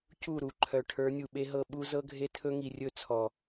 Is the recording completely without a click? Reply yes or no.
no